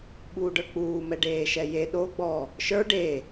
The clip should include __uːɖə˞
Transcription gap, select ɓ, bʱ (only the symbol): ɓ